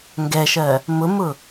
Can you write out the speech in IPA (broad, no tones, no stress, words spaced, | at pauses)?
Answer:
ŋɡɛʃɜ | mʊmʊ